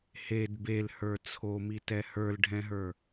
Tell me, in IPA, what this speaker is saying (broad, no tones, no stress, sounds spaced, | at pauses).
h e d b e l h ə˞ t͡sʰ o m i t ɛ h ə˞ l ɖʱ ɛ̃ ɦ ə˞